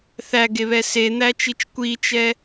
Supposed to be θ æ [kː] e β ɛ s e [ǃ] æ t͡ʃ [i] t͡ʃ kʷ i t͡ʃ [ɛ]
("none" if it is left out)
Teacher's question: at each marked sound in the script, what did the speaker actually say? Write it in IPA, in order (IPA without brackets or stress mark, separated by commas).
ɡ, n̪, i, ɛ